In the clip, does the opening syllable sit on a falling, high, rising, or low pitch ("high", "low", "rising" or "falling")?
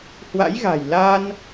rising